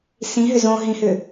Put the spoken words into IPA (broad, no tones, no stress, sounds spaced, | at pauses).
s ĩ ɦ ʏ z õ ɦ ĩ h ʏ